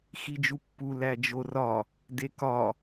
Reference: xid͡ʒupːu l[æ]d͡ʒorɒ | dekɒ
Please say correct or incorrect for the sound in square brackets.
correct